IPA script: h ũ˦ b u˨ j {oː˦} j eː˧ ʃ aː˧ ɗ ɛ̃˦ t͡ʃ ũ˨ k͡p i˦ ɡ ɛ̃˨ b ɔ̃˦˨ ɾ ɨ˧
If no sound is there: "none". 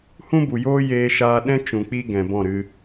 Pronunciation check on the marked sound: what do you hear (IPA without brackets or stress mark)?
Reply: oː˦